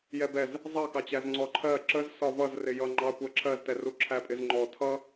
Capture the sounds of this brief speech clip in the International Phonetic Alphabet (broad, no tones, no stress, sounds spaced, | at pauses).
j ɛ b ɛ z | zˤ ɑ k ɑ t͡ɕ æ z ŋ͡ǀ ɔ ǃʰ ɜ ǁ ə z s ɒ v ʌ z r ɪ j ʌ ŋ͡ǃ ɑ kʷ ɜ ǁʰ ɜ z t ɛ r u ǁʰ æ pʼ ɪ z ŋ͡ǃ ɔ tʰ ʌ